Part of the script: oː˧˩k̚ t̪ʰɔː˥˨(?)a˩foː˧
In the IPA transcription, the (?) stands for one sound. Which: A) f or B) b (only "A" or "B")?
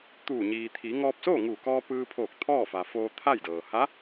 A